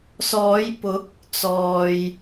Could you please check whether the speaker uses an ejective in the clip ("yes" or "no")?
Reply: no